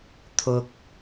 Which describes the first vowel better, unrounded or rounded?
rounded